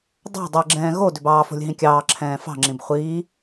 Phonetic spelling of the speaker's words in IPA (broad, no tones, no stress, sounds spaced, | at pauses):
dˤ ɑ̤ dˤ i ɡ͡ǁ ɛ̃ː ɣ o d ʏ b ɑː f o̤ lʲ ɦ ĩ kʲ ɑː ǁʰ ɛ̃ː f ɑ̤ ŋ͡ǁ ĩ b χʷ iː